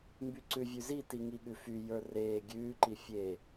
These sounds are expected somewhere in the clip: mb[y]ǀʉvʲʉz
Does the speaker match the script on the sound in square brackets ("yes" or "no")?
yes